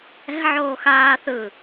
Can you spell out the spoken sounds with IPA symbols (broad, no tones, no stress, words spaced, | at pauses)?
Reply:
ɛ̤ʕoː xaː θɯ